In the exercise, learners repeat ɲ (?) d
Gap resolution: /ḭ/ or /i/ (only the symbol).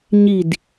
i